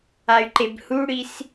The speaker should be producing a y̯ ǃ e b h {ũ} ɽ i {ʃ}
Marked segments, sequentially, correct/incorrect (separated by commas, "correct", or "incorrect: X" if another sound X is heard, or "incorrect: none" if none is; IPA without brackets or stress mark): incorrect: u, incorrect: s